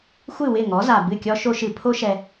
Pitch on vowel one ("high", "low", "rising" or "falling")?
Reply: falling